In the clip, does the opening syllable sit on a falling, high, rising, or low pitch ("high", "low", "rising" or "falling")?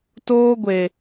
high